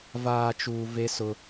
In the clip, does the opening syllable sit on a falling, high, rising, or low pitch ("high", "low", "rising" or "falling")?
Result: low